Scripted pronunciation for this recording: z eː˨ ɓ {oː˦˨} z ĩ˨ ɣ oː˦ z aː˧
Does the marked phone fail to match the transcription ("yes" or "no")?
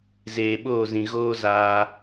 no